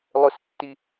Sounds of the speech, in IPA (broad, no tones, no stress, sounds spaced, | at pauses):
lˠ ʊ s tː i